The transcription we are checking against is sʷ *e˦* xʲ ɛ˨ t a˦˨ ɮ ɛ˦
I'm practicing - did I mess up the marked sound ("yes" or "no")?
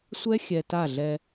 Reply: yes